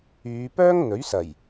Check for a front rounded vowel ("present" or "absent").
present